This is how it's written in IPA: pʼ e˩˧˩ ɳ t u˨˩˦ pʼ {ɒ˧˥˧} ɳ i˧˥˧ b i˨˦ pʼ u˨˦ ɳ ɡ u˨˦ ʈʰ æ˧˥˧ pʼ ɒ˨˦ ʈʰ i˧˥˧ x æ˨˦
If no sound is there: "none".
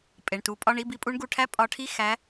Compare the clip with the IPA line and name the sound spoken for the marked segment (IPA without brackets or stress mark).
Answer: ɒ˧˥˧